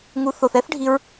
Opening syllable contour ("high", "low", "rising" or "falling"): rising